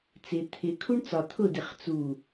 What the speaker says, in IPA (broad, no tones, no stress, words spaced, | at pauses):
t͡sɪ t̪ʰɪ kʰuɳt͡sɒ t̪ʰʊdɪχ t͡su